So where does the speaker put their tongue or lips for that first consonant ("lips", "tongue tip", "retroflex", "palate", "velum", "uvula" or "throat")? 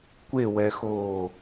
velum